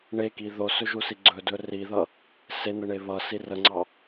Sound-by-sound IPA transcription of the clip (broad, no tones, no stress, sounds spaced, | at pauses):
ɳ e k i ð o s ɵ ʒ u s i ɡ͡ǀ ɵ d ɵ r i ð ʌ | s e n̪ ə ɳ e β ʌ s i r ə ŋ͡ǀ ɑ